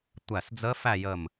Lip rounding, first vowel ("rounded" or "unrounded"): unrounded